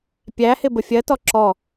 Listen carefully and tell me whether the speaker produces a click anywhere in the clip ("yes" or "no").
yes